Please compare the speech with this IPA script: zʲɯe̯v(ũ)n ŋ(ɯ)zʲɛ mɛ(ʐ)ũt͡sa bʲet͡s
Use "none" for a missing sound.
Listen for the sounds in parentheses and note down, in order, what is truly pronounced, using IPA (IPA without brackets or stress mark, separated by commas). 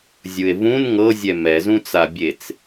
ũ, ɤ, z